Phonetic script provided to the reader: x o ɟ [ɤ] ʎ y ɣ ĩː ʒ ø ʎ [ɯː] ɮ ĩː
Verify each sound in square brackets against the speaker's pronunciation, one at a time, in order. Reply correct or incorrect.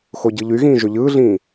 incorrect, correct

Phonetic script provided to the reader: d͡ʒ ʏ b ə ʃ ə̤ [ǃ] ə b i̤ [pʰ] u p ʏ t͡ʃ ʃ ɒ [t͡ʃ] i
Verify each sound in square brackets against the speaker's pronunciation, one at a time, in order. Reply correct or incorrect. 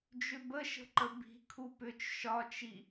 correct, incorrect, correct

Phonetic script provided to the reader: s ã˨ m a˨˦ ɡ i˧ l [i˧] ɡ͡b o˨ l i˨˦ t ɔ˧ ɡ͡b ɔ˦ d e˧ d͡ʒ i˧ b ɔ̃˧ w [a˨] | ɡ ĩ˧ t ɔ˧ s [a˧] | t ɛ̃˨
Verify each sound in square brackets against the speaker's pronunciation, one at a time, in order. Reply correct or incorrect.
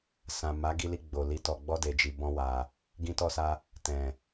correct, correct, correct

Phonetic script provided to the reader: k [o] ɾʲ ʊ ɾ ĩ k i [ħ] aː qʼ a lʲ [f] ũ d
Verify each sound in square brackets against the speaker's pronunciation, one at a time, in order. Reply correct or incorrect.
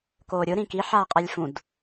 incorrect, correct, correct

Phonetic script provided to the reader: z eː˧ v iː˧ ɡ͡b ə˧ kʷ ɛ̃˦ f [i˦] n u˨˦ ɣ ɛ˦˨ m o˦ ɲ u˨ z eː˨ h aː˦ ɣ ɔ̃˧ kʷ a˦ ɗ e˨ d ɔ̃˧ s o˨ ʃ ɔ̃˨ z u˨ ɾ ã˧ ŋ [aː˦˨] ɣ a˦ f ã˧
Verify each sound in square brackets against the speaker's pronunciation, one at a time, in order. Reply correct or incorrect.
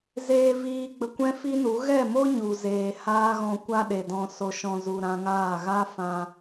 correct, correct

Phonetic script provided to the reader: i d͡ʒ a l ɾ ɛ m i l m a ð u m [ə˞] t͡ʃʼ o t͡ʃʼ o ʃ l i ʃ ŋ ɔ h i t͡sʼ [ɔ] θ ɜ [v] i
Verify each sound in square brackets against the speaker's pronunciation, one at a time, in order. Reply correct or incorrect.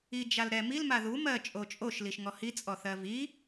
incorrect, correct, correct

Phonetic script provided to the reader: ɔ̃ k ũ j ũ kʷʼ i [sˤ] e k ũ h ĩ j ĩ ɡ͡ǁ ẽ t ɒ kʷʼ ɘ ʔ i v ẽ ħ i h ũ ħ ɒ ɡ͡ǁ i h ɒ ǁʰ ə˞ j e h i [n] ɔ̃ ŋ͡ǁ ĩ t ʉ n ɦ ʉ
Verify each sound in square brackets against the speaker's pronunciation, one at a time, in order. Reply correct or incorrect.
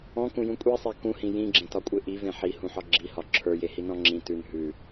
correct, correct

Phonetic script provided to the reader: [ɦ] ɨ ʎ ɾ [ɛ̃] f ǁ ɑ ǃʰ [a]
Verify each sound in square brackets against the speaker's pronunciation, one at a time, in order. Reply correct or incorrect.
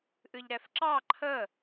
incorrect, incorrect, incorrect

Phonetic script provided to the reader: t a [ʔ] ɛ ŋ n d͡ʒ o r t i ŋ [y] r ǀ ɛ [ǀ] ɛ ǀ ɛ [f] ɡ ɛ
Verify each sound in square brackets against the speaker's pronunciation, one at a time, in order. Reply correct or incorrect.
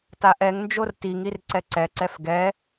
correct, incorrect, correct, correct

